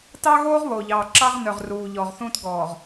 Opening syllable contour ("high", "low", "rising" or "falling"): high